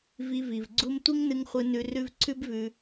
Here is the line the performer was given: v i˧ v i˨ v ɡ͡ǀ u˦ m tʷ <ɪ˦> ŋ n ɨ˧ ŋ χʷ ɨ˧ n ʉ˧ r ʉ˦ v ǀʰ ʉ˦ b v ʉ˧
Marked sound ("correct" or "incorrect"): incorrect